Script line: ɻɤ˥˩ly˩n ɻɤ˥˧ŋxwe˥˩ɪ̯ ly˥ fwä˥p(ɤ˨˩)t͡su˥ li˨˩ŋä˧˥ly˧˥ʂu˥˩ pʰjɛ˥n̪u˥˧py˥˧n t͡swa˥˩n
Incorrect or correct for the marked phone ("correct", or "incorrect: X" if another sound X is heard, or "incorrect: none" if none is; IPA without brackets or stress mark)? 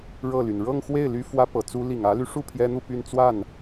correct